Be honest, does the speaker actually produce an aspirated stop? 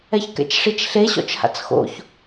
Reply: no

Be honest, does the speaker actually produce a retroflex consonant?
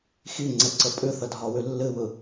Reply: no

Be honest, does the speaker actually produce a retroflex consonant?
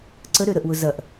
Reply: no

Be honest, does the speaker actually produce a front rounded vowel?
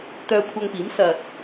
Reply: yes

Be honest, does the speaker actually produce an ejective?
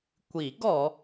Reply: no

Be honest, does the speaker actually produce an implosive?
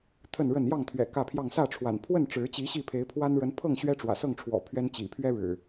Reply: no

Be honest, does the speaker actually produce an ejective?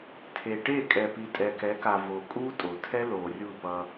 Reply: yes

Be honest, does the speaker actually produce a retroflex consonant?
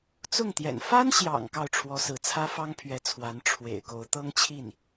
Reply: yes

